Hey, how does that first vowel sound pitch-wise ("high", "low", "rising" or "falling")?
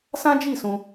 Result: high